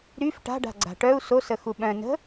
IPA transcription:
ɾ y f ʈ a̤ ɖ a̤ ɡ͡ǀ a̤ ʈ œ u̯ s o s ə x u ɓ œ̃ n ə̤

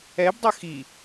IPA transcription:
ɛ b dˤ ʌ x i

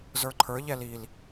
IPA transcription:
z ə˞ ǃʰ ə˞ ʎ ɛ l i l

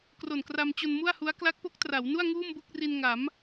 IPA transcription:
k r o˨˩ n k r a˧ m t͡ɕ o˧ n m u˥˩ a̯ h u˦˥ a̯ k l a˦˥ k̚ p o˦˥ k̚ t r a˩˦ w n u˥˩ a̯ ŋ uː˥˩ m b u˥˩ k̚ r i˧ n ŋ a˩˦ m

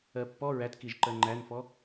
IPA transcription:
ɜ pː ɔ ɹ æ t k i ʒ ǃ ɜ ŋ͡ǃ æ n f ɔ

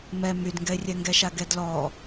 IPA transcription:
m ɛ m y d ŋ ɡ ɛ ɪ̯ rʲ ɛ ŋ ɡ ɛ ʃ a ɡ ɛ d l ɔ

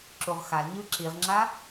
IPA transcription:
ǁ u ʁ x a l ɲ ɯ ǁ i ʁ ŋ͡ǁ a

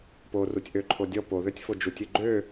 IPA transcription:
p o r u tʲ ʔ ø ǃʰ o dʲ ɔ p o ð ø tʲ f o d͡ʒ u tʲ ø ɡ͡ǃ ø

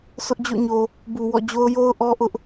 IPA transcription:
sʰ ʊ˦ ʔ d͡ʑ o̰˦˨ ɲ o˨ | b u˨ w ɔ̰˦˨ d͡ʑ o˦ ʊ̯ j o˦ ʊ̯ ʔ ɔ˦ ʔ ʊ˦ ʔ

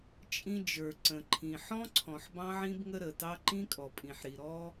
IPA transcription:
t͡ʃʼ ĩ˧ d͡ʒ ə˞˩ ǀ ə̃˩ ǃʰ ĩ˩ ħ ɔ̃˧ ǀʰ ɔ̃˩ ħ b ɑ̃˧ ʕ ĩ˧ b ŋ ə˧ ɾ ə˩ t ɑ˧ ǃ ĩ˧ kʼ ɔ˩ pʼ ĩ˩ ħ ɾ i˩ ɾ ɔ˧

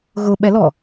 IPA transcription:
ɣ ʊ ɓ ɛ l ɔ

